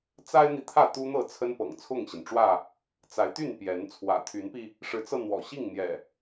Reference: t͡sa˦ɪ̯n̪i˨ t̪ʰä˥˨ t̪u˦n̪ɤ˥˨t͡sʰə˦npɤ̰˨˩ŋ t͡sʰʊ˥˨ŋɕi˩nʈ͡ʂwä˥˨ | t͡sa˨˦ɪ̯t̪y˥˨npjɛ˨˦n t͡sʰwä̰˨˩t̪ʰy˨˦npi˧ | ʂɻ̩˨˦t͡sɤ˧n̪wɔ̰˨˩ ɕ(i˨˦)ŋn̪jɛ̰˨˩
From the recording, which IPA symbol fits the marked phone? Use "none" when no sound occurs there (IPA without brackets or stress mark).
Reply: i˥˨